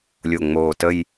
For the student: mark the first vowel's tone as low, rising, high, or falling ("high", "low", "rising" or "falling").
low